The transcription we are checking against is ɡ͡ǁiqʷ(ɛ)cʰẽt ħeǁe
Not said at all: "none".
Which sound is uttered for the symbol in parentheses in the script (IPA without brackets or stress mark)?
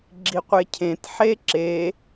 e